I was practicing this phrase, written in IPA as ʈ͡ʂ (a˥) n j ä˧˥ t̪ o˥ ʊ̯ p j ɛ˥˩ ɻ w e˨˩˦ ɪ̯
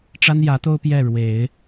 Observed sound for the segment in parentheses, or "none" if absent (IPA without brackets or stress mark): a˥